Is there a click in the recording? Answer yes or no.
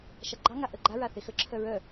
yes